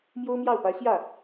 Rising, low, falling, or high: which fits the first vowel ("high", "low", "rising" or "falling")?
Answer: high